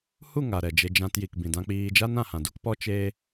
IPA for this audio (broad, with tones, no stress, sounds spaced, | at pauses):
h u˦˨ ŋ a˨ ɾ ɛ˨ d͡ʒ e˧ d͡ʒ ã˧ t j i˨ k b ĩ˨ d ã˧ k͡p iː˧ d͡ʒ a˦ n ã˨ h ã˨ d u˦ k p ɔ˦ t͡ʃ eː˦